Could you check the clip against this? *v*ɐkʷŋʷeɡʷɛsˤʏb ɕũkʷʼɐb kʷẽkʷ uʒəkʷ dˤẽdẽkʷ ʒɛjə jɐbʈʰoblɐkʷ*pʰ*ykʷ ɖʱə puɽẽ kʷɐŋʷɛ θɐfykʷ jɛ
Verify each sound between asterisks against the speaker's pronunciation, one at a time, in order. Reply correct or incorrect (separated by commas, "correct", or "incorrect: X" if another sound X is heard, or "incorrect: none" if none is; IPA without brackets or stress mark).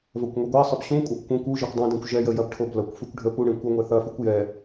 correct, incorrect: f